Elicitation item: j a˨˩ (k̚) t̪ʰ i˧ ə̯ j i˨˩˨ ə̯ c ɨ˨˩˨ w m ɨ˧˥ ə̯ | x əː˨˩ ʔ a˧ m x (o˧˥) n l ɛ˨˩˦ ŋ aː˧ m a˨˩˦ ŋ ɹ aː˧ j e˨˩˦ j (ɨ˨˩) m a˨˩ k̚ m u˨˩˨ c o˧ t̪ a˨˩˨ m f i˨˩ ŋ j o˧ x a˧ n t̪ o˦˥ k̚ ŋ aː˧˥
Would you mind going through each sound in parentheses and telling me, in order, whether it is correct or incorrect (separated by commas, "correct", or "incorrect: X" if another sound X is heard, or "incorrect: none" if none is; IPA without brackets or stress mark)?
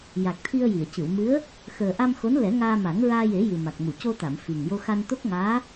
correct, correct, correct